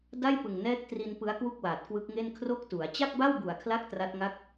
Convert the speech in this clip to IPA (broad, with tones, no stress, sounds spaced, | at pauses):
d a˥˩ j p ɯ˨˩ ŋ n ɛː˦˥ k̚ t r i˧ n p ɯ˦˥ a̯ k w u˥˩ k̚ w aː˨˩ t̚ k w ɯ˦˥ k̚ ŋ e˥˩ n kʰ r o˥˩ k̚ t u˩˦ a̯ t͡ɕ a˥˩ k̚ b a˥˩ w b u˨˩ a̯ kʰ l a˦˥ k̚ t r a˦˥ t̚ ŋ a˥˩ k̚